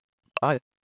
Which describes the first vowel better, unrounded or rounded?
unrounded